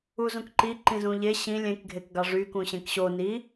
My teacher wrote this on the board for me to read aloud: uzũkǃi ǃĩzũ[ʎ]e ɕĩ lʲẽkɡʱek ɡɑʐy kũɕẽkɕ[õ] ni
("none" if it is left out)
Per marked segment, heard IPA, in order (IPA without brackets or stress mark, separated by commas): ʎ, o